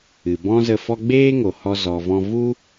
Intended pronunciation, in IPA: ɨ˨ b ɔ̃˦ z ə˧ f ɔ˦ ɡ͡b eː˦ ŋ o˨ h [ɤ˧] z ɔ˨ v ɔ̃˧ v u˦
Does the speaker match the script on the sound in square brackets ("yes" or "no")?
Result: no